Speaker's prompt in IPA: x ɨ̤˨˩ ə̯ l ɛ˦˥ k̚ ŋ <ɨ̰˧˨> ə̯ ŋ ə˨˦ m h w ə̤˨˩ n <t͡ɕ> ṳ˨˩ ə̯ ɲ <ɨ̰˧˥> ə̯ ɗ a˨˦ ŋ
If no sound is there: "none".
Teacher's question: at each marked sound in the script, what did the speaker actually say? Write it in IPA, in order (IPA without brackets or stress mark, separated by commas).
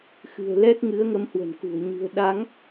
ɨ˨˦, k, ɨ̤˨˩